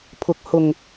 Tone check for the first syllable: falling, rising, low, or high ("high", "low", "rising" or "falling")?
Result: rising